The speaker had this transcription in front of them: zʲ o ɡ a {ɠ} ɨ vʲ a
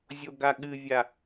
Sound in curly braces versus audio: correct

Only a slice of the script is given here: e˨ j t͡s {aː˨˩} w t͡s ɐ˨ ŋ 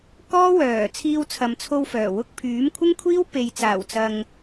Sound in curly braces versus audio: correct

